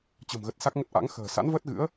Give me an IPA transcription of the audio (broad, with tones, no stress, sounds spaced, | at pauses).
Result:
t͡ɕ ə̤˨˩ m ɣ ə˨˩ t̚ s a˦˥ k̚ ŋ ə˦˥ t̚ ʔ a̰˧˥ ŋ x ə̤ː˨˩ s a̰˧˥ n v əː˦˥ t̚ ɣ ɨ̰˧˥ ə̯